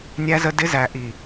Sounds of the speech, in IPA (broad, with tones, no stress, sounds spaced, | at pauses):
nʲ æ˧ z ə˧ d ɪ˧ z æ˨ ʔ i˨